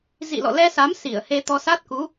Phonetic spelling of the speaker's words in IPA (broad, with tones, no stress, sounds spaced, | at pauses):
z ḭ˧˨ l ɔ̰˧˨ l ɛ˧ s a˨˦ m s i˧˩ ə̯ h e˧ t̪ ɔ˧ s a˦˥ t̚ k u˨˦